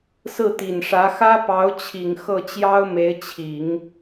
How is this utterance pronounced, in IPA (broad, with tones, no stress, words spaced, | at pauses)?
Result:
sɹ̩˥˩t̪i˨˩nʂä˧˥ xä˥ pɑ˧˥ʊ̯t͡ɕʰi˨˩ŋ xɤ˥˩t͡ɕjɑ˥ʊ̯me˧˥ɪ̯ t͡ɕʰi˨˩˦ŋ